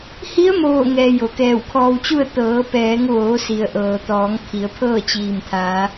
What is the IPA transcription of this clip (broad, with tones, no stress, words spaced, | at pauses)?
hi˧˥ə̯moː˧˩ŋɛː˩ jo˩kɛː˧˩wkʰɔː˧wt͡ɕu˥˨ə̯ t̪ɤː˩˧pɛː˩˧ŋʋoː˩˧si˩ə̯ ʔɤː˩t̪ɔː˩˧ŋ kʰi˩˧ə̯pʰɤː˥˨t͡ɕiː˧˩m t̪ʰaː˩˧